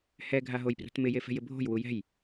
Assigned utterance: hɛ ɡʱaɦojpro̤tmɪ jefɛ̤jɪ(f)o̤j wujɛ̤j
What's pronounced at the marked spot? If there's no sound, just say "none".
bʱ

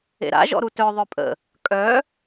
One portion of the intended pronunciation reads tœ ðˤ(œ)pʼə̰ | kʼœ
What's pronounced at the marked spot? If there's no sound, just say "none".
œ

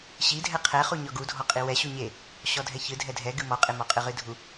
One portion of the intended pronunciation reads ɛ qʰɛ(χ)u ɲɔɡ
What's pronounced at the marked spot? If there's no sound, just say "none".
χ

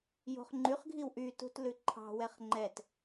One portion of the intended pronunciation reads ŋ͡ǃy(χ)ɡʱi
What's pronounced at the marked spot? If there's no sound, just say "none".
χ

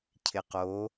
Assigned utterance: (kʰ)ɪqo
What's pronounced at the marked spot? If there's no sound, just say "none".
cʰ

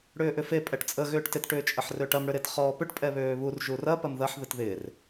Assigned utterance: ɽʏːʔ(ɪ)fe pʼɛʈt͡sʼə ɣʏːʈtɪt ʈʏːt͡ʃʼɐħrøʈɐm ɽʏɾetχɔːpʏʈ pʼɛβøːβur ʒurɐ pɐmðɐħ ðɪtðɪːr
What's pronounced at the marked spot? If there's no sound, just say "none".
ʏ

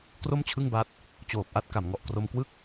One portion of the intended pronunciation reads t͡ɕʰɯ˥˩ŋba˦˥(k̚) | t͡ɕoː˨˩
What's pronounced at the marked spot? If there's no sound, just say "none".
t̚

